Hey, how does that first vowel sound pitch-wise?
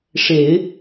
low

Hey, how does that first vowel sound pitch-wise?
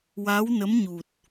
rising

